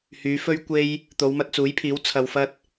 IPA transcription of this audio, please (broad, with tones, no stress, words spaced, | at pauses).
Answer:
hyː˨˧fɵ˥ɥkʷe˥j | t̪o˨˧wmɐ˧t̚t͡suː˨˥jpʰiː˨˥w t͡sʰɐ˧wfɐ˥t̚